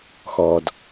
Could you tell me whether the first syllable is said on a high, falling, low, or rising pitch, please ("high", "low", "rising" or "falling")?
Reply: low